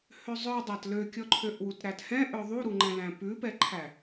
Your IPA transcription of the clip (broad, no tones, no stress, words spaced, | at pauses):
høzˤœdˤæt løkʲɔǃʰøʔwut ɾæthɛ̃ ʔœðˤuɾuŋ͡ǃɛ̃ læ̃pʉpɛǃʰæ